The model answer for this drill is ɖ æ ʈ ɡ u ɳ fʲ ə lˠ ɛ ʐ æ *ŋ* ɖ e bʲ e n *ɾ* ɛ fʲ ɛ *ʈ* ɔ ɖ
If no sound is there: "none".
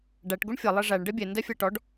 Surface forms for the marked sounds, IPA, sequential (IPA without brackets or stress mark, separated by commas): ɳ, d, ʈ